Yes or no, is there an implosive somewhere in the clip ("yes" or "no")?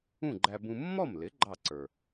no